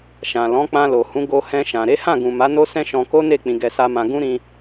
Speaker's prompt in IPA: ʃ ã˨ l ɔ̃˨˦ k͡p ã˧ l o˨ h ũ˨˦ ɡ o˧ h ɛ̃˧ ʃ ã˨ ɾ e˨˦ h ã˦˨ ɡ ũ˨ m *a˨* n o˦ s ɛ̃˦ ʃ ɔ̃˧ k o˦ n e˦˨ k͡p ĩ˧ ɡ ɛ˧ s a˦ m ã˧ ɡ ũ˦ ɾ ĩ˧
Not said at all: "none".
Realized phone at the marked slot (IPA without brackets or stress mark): a˨˦